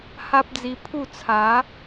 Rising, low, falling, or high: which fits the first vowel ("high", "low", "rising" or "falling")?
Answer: high